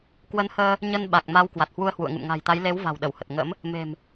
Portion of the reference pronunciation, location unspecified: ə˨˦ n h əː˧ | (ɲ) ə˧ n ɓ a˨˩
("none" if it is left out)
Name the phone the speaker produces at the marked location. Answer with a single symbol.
ɲ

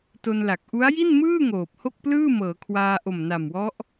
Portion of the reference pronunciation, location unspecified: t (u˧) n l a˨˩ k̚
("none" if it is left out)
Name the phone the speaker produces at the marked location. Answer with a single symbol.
o˧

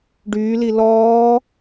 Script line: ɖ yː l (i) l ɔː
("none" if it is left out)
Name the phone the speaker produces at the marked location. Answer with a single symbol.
i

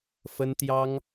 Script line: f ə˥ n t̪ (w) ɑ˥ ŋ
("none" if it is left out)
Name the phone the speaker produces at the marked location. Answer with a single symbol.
j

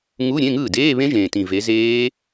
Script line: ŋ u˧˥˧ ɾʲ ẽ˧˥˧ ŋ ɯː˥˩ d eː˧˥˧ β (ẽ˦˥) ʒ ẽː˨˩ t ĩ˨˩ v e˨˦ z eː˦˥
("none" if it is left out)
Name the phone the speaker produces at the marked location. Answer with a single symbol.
ẽ˦˥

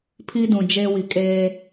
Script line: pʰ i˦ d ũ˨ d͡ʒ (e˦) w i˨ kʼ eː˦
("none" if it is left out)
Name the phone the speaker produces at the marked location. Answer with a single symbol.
e˦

